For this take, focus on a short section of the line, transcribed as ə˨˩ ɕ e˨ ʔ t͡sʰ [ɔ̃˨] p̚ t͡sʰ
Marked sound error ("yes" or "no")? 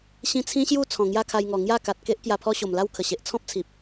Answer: yes